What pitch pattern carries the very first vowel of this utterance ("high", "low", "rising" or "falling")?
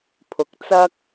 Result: rising